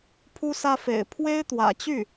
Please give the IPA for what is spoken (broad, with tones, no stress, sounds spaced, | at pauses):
pʰ u˥ s ä˥ f ḛ˨˩ ɪ̯ pʰ w e˥ ɪ̯ t̪ w ä̰˨˩ t͡ɕ y˥˩